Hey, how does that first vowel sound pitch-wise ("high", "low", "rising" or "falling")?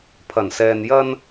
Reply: low